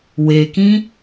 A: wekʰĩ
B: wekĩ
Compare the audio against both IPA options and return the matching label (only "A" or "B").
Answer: B